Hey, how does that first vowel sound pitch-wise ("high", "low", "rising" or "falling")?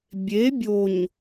rising